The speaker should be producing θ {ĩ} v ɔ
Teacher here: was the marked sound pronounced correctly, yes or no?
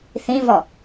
yes